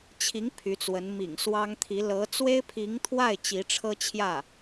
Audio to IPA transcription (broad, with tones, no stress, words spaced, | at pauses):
t͡ɕʰi˧˥ŋ pʰy˧˥t͡swə˧˥n mḭ˨˩ŋ swɑ˥ŋt̪ʰi˧˥ lɤ˧˥ t͡swe˥ɪ̯pʰi˧˥ŋt̪ʰwa˥˩ɪ̯ t͡ɕi˧˥ʈ͡ʂʰɤ˥t͡ɕʰjä˥˩